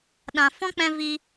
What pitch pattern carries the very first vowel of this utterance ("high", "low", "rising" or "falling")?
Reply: low